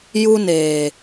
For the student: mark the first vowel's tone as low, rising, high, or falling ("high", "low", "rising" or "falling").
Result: high